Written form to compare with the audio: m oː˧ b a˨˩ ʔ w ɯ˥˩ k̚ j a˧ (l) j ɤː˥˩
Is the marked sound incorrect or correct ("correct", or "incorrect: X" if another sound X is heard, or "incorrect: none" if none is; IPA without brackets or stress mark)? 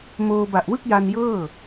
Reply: incorrect: n